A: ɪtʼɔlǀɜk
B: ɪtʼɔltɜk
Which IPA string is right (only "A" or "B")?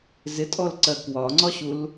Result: A